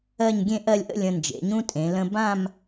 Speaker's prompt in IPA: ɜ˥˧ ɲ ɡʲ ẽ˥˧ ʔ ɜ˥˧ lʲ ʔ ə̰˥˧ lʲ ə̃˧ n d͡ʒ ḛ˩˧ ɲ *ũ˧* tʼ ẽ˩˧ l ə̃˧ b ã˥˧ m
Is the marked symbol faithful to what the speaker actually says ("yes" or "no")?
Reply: no